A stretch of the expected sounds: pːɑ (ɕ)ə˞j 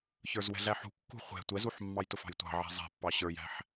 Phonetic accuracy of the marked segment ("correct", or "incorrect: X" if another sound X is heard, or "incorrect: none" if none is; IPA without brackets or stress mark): correct